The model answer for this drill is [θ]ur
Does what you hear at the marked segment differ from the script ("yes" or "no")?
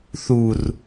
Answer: no